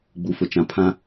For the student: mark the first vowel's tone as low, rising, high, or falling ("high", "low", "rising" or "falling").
low